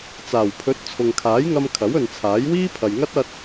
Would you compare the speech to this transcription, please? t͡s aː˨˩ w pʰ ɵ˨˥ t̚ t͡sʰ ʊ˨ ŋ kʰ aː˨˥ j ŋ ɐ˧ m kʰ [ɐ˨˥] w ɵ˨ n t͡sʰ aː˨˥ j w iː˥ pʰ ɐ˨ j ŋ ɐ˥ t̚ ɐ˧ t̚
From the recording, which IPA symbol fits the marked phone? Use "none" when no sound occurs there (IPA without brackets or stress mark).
ɐ˨˥